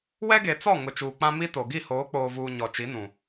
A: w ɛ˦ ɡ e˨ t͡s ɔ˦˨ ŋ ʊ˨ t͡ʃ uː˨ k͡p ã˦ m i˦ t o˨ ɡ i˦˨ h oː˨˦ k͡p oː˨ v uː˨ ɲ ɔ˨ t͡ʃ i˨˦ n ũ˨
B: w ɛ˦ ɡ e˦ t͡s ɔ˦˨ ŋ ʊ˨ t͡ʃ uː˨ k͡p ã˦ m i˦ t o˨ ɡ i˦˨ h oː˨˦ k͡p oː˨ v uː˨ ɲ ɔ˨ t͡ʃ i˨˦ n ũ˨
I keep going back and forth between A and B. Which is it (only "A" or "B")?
A